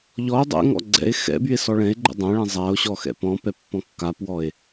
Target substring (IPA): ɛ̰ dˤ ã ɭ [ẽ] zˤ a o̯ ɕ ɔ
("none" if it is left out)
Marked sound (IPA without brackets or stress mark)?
ɛ̃